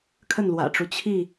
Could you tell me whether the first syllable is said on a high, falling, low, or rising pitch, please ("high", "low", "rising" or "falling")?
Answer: falling